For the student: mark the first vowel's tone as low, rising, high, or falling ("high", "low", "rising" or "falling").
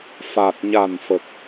low